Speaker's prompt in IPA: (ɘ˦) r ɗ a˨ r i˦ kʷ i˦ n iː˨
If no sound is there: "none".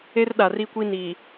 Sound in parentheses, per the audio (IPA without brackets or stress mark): e˦